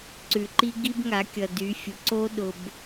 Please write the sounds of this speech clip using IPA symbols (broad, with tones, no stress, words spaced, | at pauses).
ǀʉ˨ǃi˦ ɡi˦bŋa˨˦kʲʌ˨dy˨˦ fʲʊ˨ǀo˦ ɗʊ˨b